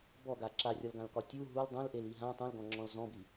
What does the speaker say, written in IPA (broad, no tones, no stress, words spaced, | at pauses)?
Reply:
bɔɡa ǁarʲɒlɡãlkɒ tʲu ɦul dˤũlʔeli ɦã tˤũlɡɔ̃ŋ͡ǁɔ̃l zɔ̃bi